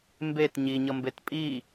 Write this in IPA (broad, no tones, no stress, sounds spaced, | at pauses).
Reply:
m b e t ɲ i ɲ ʌ m b e t pʼ i